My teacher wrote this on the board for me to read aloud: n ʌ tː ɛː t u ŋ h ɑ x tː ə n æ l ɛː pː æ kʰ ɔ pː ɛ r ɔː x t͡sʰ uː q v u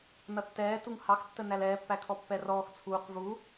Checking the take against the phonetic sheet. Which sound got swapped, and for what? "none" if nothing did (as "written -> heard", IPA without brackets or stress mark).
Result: none